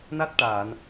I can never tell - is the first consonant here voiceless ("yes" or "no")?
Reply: no